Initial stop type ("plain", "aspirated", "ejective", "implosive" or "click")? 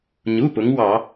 plain